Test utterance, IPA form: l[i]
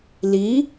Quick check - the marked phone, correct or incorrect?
correct